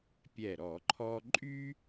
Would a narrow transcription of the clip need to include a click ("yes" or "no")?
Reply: yes